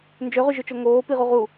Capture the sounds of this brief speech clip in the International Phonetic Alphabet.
n d͡ʒ ø ʁ y ʒ ʏ t͡ʃ o ŋ oː p i ʁ u ʁ u

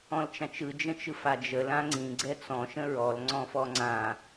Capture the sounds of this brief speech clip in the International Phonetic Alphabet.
ɔ̃ l t͡ʃ ã t͡ʃ ɯ d͡ʒ ə̃ t͡ʃ ɯ f a d͡ʒ ə l ã ŋ͡ǀ ĩ ɡ͡ǀ ɛ t͡s ɔ̃ ʃ ə̃ ɹ ɔ l ŋ͡ǀ ɔ̃ f ɔ ŋ͡ǀ ã

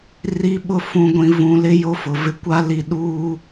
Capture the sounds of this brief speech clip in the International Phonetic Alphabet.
r i˨ ɓ ʊ˨ f ũ˨ ɡʷ ĩ˨ v ũ˨ l ɪ˦ j o˦ f ʊ˨ v ɪ˦ kʷ a˦ l i˦ ɗ uː˦

